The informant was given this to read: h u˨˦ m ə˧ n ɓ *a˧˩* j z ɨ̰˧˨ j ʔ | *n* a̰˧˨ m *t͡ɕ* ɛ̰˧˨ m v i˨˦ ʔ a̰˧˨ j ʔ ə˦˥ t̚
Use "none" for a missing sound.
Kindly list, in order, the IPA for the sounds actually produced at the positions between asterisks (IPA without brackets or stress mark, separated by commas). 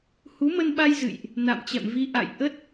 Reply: a˧, n, t͡ɕ